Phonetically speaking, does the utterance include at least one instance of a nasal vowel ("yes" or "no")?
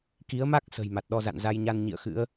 no